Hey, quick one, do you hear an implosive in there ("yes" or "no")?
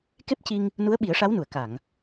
yes